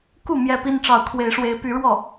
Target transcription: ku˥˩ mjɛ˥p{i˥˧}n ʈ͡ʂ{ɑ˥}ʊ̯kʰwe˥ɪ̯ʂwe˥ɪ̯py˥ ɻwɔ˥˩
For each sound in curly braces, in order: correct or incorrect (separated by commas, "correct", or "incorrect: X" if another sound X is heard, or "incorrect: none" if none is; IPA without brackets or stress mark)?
incorrect: i˥, incorrect: ɑ˥˩